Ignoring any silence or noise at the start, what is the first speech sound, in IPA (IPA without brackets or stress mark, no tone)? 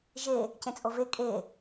ʒ